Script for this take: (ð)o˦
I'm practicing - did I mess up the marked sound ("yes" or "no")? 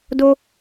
yes